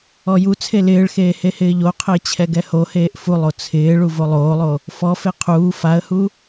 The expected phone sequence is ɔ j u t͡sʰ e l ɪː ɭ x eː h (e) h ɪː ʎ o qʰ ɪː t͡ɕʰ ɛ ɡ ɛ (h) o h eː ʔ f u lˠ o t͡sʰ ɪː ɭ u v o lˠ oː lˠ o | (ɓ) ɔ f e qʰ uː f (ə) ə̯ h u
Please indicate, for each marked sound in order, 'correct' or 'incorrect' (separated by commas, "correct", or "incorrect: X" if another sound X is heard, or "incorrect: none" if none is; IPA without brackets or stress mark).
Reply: correct, correct, incorrect: f, incorrect: a